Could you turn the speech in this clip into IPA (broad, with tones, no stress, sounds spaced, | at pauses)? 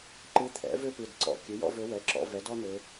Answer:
ǃ ɨ˧˥ t̪ʰ ɛ̰˩˥ v ø˥ p ɨ˩˧˩ d ǀ ɔ̰˩˧˩ kʲ ɨ˩˥ j ɔ̰˥ v ø˧˥ w ɛ˩˧˩ ǁ ɔ̰˩˧ v ɛ˩˥ d ɔ˥ n̪ ø˩˧